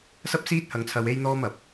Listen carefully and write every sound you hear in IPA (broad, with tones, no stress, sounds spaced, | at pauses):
s ɐ˥ p̚ s iː˥ t̚ h ɐ˧ ŋ t͡sʰ ɐ˧ w e˥ j n̪ ɔː˥ m ɐ˨ p̚